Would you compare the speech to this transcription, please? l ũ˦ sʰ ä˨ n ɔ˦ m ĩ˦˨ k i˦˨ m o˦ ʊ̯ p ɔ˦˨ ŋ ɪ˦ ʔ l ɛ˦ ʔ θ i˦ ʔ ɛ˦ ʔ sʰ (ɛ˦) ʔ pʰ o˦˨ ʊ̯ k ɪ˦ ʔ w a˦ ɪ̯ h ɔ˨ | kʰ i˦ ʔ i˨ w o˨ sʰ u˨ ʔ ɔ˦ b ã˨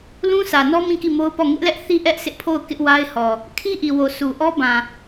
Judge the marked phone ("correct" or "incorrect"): incorrect